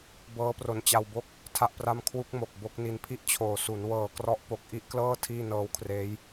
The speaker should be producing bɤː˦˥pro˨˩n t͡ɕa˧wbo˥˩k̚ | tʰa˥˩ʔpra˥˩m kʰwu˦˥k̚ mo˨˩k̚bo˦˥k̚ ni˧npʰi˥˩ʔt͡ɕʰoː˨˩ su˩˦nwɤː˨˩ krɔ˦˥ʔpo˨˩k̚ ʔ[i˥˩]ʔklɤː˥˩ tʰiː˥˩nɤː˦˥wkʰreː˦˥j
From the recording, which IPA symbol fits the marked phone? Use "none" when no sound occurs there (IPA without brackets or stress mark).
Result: i˥˩